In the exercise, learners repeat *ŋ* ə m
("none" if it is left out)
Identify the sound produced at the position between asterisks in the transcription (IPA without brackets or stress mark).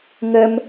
ŋ